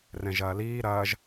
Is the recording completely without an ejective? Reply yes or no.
yes